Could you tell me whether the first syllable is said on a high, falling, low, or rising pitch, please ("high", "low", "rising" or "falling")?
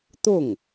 falling